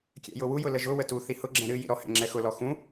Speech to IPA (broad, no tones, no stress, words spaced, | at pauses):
kʲɛ̰jʊwujʊ ləʒʊwə tu θihʊɡ͡ǁɛ̃ ɾɨjḭ ɾɔhɛ̰ ŋ͡ǁɛxʊlɔ xũ